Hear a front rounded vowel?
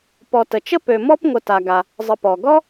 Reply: yes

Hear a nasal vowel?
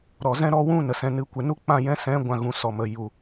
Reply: yes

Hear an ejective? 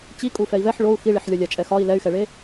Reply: yes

